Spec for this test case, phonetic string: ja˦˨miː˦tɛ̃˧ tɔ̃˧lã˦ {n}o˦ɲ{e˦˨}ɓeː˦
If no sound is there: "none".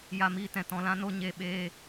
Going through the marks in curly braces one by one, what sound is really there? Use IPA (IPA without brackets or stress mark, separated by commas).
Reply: n, e˦˨